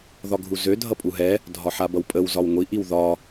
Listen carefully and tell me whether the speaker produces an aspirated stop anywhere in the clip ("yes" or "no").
no